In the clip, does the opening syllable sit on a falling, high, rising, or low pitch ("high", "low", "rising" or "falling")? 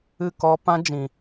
falling